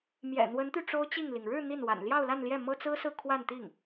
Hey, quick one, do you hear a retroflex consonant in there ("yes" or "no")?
yes